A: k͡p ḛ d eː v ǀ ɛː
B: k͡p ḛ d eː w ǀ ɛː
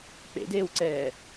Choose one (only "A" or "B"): B